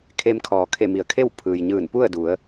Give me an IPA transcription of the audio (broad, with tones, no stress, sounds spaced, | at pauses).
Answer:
kʰ e˧ m kʰ ɔː˩˧ kʰ e˧˩ m i˩˧ ə̯ kʰ e˥˨ w pʰ ɯː˩ j ɲ ɯː˧˩ n p u˥˨ ə̯ d u˩˧ ə̯